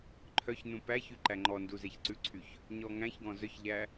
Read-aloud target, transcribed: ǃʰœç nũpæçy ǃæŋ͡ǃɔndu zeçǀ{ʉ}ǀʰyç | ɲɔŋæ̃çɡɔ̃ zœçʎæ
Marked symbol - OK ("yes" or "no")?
yes